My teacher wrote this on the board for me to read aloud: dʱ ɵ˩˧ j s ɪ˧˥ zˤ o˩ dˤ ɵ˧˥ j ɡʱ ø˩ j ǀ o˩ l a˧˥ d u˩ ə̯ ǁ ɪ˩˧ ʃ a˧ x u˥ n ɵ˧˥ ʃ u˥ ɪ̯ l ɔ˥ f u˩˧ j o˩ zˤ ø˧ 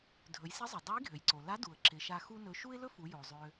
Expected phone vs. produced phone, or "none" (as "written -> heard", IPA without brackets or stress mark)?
ɔ˥ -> ɵ˥